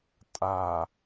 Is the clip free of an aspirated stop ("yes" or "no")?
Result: yes